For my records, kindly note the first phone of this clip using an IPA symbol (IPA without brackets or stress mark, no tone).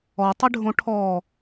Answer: ɔ